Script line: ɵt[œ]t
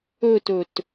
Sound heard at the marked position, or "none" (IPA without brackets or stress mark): ɵ